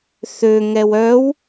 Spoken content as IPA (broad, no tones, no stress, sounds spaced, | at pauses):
θ ø ŋ ɛ w œ w